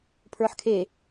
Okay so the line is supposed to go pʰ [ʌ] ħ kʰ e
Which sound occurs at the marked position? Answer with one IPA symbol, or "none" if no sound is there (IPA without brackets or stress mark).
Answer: ə˞